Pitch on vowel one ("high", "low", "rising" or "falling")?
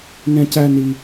high